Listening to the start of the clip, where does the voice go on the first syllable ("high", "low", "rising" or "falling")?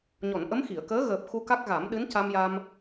low